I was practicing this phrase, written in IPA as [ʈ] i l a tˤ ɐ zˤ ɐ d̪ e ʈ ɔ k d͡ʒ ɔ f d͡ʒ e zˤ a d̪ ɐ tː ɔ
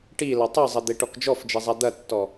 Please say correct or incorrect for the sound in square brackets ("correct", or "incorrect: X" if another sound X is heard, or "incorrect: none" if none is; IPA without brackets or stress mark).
correct